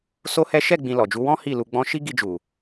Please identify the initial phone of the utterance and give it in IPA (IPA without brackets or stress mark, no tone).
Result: s